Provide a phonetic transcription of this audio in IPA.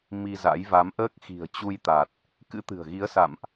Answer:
m i˧ z a̰˧˥ j v a˨˦ m ʔ əː˦˥ k̚ x i̤˨˩ ə̯ t͡ɕ u˧ j t̪ a˨˩ t̚ | k ɨ̰˧˥ t̪ ɨ̤˨˩ ə̯ ɣ i˨˦ ə̯ s a̰˧˨ m ʔ

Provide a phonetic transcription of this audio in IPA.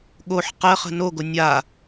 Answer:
ɠ o ħ q ɜ χ ə̤ n o ɡ o nʲ a

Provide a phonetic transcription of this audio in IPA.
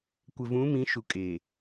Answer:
kʷ ɪ˨ v ũ˨˦ m ĩ˨˦ ʃ u˨ kʼ e˨

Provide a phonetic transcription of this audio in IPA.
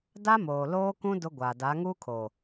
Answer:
d a˦ m oː˨ l oː˦ k ũ˦ d ʊ˦ ɡʷ a˨ d a˨˦ ŋ uː˦ kʰ oː˨

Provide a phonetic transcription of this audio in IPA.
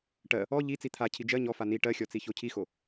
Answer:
ʈ ɜ | ɔ ʎ i t͡s i t̪ʰ a cʰ i d͡ʒ ɜ ɲ ɔ f a n i ʈ ɜ xʲ ɔ t͡s i ç o cʰ i x o

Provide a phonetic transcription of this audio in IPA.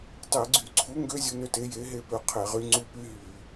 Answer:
tˤ e˧˩˧ ɡ͡ǀ y˧˩˧ ǀʰ u˨˥ ŋ ɡ ø˦ zʲ u˦ n ø˦ t e˨˥ j e˨˥ ɦ e˦ p ø˨˥ qʰ e˧˩˧ ʁ y˨˥ ŋ͡ǀ u˦ p y˦ ɦ y˧˩˧

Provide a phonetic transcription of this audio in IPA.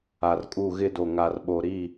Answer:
a˨ r kʼ u˦˨ ɣ ɪ˦ d o˨ ŋ a˨ r ɓ o˨ ɾ i˦˨

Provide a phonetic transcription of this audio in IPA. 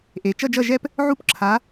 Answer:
ʔ e˩ t͡ʃ ʌ˦˨ d͡ʒ ʌ˦˨ ʒ ɛ˦ p | ʕ u˦ p ǁʰ a˨˦

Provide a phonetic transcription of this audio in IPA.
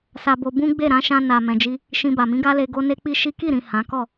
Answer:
s a˧ b o˧ b ũ˦ ɡ͡b e˦˨ ɾ ã˨˦ ʃ ã˧ n a˨ m ɛ̃˨ d͡ʒ i˧ | ʃ ĩ˧ b a˨ m ĩ˨˦ ɡ a˦ l e˧ ɡ o˦ n e˦ k͡p i˦ ʃ i˦ k i˦˨ ɾ ĩ˨ h ã˨˦ k ɔ˦˨

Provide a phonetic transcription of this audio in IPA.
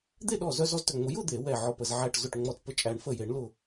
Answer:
d̪ e˥˧ ɗ ɔ˧˩ z œ˥˧ z ɔ˥˧ z t œ˧˩ ŋ͡m ʊ˨˩˦ j ʊ˥˧ d̪ e˨˩˦ w ɛ˧˩ ʕ ɔ˧˩ p ə˧˩ z ʕ æ˧˩ ʈ z ʊ˧˩ ʈ ŋ͡m ɔ˧˩ t p ə˧˩ t͡ʃʼ æ˨˩˦ ɳ f ə˧˩ j e˨˩˦ ɳ l ʊ˧˩

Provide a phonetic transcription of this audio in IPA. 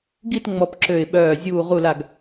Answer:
ɡ i˦˨ t ŋ͡m ɔ˨˩ p ǁ ø˨˩ ɪ̯ ɓ œː˨˩ zʲ uː˨˩ ʁ u˨˩ l a˨˩ ɡ

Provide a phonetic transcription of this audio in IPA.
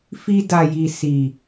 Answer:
f i˧ d a˨ j i˨ s i˨

